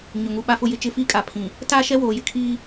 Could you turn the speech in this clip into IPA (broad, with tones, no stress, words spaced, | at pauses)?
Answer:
ɲʊ˨ŋu˨ ɓa˨fʊ˨jɪ˨t͡ʃɪ˨ fiː˦kʼa˨pʰĩ˨ | taː˦˨ʃɛ˦ woː˨jɪ˦kʰiː˦